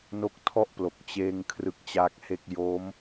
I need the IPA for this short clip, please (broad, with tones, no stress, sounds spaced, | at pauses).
n o˦˥ k̚ tʰ ɔ˥˩ ʔ p l o˨˩ k̚ t͡ɕ eː˧ ŋ kʰ r ɯ˦˥ k̚ t͡ɕ aː˦˥ k̚ h e˥˩ k̚ j o˦˥ m